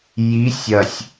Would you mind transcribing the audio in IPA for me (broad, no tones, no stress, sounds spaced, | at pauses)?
j i sʲ ɐ sʲ